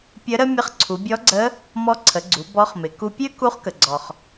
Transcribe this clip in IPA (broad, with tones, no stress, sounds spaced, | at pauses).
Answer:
pʲ ə˧˥ ɾ ə˥ mʲ ə˧˥ χ ǀʰ u˩˧ bʲ ɔ˧˥ ɡ͡ǀ ə˧˥ | m ɔ˧˥ ǀʰ ə˩˧ ɡ͡ǀ u˩˧ b ɔ˧˥ χ m ɪ˩˧ k u˧ pʲ ø˥ k u˧˥ χ k ə˩ ɡ͡ǀ ɔ˩ χ